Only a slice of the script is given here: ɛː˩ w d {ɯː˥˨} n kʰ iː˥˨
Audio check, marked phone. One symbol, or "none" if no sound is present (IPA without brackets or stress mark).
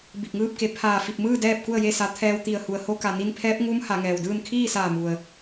ɯː˥˨